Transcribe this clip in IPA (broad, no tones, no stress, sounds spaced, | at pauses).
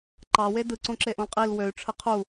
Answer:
ǃ ɑ w e d ɯ ǀ õ ǁ e ʔ õ l qʼ i l w ø y̯ ʈ͡ʂʰ ɯ qʰ u